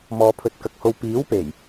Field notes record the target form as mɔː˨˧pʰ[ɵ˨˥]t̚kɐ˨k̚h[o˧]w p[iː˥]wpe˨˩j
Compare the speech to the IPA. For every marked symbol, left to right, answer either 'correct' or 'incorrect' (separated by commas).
correct, correct, incorrect